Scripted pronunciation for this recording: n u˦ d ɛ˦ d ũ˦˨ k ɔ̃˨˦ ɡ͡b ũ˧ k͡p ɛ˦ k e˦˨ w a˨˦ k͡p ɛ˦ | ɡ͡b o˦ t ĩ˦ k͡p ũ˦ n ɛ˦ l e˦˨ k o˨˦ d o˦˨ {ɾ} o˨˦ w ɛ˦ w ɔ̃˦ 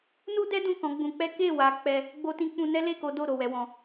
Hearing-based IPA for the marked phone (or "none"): ɾ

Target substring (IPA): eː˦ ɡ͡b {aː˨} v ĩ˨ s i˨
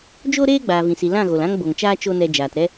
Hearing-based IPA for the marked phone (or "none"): aː˨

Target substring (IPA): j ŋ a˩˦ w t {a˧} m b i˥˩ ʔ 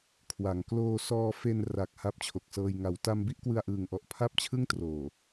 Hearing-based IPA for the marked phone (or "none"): a˧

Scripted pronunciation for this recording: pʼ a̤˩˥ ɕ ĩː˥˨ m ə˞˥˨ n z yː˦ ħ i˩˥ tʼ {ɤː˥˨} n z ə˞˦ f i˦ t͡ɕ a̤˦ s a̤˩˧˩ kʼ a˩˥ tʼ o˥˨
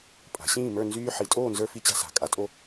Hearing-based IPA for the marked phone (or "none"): oː˥˨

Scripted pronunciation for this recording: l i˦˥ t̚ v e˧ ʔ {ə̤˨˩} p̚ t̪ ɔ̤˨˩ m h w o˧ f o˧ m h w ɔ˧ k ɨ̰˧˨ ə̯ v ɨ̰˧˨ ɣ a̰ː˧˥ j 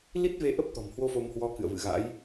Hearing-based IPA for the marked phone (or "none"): ə˦˥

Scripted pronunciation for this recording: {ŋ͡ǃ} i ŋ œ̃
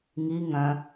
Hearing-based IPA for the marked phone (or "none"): ŋ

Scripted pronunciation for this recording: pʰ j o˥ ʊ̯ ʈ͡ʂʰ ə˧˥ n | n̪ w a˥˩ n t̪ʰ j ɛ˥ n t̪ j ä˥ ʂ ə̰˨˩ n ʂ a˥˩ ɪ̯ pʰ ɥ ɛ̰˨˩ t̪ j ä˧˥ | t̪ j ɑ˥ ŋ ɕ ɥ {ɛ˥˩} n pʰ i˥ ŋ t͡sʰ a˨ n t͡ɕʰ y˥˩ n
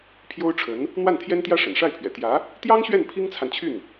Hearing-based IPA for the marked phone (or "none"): ɛ˥˩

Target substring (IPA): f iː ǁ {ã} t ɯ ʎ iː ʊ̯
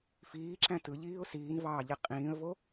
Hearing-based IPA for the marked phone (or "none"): æ̃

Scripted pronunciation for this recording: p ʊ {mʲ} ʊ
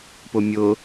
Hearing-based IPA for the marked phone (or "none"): mʲ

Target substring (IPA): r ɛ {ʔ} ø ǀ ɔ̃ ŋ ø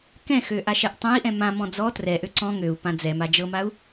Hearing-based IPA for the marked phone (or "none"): ʔ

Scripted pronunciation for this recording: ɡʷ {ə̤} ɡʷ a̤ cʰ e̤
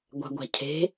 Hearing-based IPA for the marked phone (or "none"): a̤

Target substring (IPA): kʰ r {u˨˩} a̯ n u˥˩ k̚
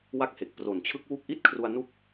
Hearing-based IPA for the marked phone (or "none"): u˧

